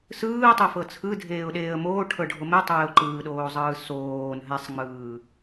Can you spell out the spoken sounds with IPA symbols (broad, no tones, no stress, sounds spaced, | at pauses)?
s ɯː tˤ e f ɤ t͡sʰ ɯ dʱ eː ʊ̯ ɗ eː ə̯ m oː ʈʰ ɤ ɖʱ o m e tˤ eː ʊ̯ ǃ ɯː ɗ oː zˤ ɯː s oː n ɦ ɛ sˤ ŋ͡m ɯː